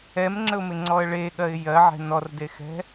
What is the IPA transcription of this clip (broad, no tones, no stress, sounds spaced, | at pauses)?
ɛ m ŋ͡ǁ ə ʊ̯ m ɪ ŋ͡ǀ ɔ ə̯ ɭ e ɠ ɜ ɪ̯ j ɜ ʕ ɛ̤ n ɔ r d e x ɛ̤